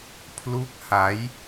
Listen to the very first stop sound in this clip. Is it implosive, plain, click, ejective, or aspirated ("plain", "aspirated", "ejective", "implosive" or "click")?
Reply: aspirated